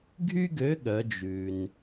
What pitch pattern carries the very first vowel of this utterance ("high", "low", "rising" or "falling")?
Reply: high